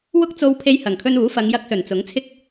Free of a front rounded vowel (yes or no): yes